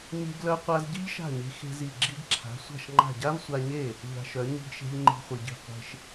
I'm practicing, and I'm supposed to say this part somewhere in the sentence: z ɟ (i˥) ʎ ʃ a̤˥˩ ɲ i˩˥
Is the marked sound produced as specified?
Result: yes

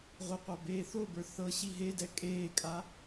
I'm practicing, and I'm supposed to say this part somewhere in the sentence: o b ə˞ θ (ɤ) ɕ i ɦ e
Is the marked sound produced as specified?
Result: yes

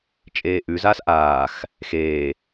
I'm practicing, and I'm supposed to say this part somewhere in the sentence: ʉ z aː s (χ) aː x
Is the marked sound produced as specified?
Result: no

